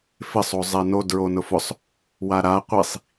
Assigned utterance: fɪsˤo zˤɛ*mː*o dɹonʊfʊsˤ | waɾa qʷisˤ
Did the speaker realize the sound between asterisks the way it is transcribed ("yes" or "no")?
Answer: no